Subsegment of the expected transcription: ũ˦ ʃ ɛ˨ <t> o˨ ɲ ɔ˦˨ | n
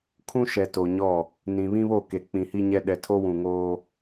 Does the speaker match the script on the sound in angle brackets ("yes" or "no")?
yes